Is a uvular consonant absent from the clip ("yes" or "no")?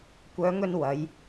yes